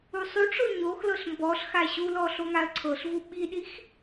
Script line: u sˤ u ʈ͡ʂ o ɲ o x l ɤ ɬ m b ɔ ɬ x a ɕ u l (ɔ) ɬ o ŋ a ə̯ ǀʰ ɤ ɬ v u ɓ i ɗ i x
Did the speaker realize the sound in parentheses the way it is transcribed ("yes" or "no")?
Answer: yes